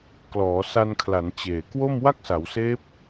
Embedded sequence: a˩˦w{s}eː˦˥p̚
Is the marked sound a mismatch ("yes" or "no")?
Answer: no